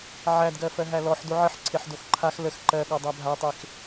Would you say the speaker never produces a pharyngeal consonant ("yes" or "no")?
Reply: no